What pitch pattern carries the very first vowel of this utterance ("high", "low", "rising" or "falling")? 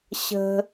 high